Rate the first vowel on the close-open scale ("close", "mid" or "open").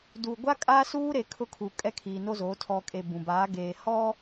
close